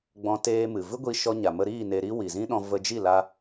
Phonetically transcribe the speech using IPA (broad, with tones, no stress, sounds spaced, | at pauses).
ɡ͡b ɔ̃˧ t eː˧ m ɨ˨ v ɨ˦ ɡʷ i˧ ʃ ɔ˧ ɲ a˨ m ə˧ ɾ iː˦˨ n e˧ ɾ i˦ w i˨ z ĩ˦ ɗ ɔ̃˧ v ə˧ d͡ʒ i˦˨ l a˧